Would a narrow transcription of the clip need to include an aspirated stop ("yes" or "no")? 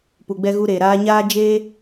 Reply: no